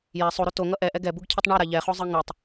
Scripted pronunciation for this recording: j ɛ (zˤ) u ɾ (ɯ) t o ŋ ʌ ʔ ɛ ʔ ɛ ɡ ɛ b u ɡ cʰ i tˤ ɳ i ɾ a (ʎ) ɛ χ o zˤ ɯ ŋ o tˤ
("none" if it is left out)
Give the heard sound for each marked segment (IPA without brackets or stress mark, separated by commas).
sˤ, u, ʎ